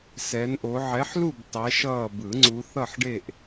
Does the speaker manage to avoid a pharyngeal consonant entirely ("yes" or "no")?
no